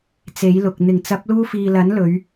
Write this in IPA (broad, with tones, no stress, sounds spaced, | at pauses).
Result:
t͡s e˨˥ j l ʊ˨ k̚ n̪ ɪ˨˩ ŋ t͡s ɐ˨˥ p̚ l uː˥ f iː˧ l ɐ˨˥ n l ɵ˨˧ ɥ